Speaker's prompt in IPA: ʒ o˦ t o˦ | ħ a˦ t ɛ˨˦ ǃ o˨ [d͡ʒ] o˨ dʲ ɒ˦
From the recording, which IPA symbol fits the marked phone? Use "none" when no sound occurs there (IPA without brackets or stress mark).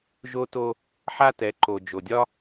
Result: d͡ʒ